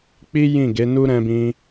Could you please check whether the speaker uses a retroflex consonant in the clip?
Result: no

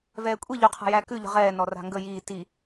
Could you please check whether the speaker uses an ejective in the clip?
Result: yes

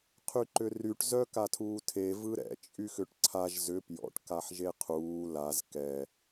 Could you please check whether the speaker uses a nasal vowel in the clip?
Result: no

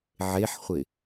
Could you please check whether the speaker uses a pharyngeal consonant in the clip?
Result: yes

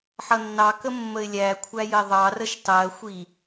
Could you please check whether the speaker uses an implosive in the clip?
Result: no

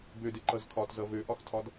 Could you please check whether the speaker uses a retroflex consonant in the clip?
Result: no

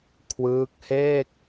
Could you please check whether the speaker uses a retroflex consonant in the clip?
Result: no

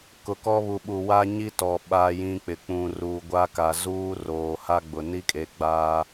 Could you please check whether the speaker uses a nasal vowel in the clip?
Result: yes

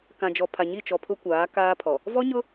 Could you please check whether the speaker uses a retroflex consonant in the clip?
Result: no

